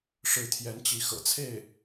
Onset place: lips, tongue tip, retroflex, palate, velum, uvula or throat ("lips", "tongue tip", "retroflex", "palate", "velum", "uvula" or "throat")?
retroflex